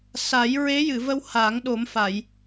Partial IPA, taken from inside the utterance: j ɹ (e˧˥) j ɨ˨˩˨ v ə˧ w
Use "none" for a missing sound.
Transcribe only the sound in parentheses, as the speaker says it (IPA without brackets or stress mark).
e˧˥